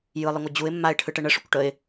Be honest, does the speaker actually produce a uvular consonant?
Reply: no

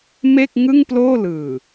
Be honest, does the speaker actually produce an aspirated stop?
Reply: no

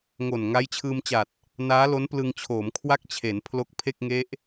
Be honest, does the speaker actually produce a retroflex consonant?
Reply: no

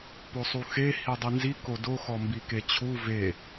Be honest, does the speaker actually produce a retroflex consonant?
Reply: no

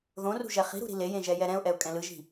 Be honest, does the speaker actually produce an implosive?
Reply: no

